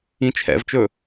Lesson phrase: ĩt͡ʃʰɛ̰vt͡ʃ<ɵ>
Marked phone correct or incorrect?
correct